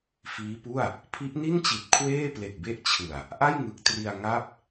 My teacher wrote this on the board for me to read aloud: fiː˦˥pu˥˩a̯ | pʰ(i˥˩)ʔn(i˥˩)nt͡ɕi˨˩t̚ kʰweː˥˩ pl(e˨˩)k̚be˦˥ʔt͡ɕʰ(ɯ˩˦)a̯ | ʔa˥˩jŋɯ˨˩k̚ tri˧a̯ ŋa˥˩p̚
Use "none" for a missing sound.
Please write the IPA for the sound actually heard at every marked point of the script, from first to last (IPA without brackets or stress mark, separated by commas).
i˦˥, i˥˩, e˨˩, ɯ˨˩